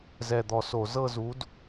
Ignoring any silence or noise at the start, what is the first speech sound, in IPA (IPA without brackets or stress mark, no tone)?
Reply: z